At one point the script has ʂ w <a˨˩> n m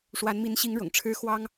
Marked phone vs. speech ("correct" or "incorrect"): incorrect